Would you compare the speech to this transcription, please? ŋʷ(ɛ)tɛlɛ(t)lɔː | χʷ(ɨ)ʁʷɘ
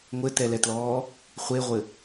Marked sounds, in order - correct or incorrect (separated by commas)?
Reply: incorrect, correct, incorrect